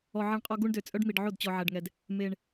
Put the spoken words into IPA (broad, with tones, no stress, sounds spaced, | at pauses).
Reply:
ɔ˨ ʕ i˨ ɳ qʼ ɔ˧ ɡ u˦ ɳ d ø˨ t͡sʼ œ˦ ɖ m i˨ ɖ ʕ o˦˨ d t͡ɕ ɔ˧ ʕ æ˧ ɖ ŋ ɛ˧ d | m e˨ ɳ